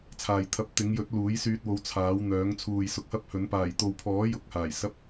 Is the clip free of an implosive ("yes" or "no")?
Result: yes